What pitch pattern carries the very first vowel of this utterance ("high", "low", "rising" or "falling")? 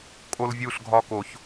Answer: high